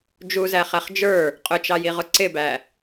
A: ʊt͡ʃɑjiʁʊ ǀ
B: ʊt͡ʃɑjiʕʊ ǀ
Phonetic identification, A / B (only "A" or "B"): A